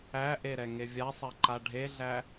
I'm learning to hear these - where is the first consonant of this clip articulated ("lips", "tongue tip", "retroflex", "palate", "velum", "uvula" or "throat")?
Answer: throat